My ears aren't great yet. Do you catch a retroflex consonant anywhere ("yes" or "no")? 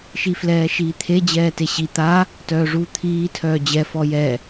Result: yes